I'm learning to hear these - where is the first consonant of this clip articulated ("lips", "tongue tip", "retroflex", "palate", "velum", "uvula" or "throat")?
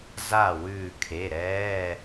tongue tip